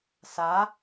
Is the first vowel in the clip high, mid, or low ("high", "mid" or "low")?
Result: low